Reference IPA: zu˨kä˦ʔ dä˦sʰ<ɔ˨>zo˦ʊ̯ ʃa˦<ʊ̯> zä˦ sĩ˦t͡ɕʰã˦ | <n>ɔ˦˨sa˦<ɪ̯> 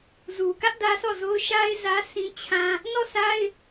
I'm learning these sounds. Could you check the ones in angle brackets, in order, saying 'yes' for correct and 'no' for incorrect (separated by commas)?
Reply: no, no, yes, yes